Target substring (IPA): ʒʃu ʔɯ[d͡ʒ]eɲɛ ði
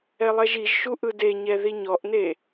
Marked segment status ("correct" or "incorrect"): incorrect